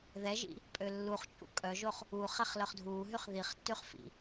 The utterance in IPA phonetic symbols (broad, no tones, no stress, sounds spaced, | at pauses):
ð ɛ ʒ ḭ | pʼ ø lː u χ t͡ʃʼ ṵ kʼ œ ʒ o χ | uː χ ɛ χ l œ χ dʱ uː ɦ y χ ð i χ tː y χ f ḭ